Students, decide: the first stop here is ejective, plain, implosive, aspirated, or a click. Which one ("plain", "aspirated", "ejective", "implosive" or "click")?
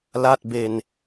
plain